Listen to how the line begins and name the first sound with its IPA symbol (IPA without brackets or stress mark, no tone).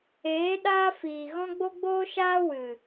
eː